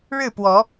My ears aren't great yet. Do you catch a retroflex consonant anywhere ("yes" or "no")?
yes